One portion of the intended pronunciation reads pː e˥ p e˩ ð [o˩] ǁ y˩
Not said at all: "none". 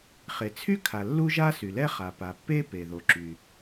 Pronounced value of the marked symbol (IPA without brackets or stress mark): o˩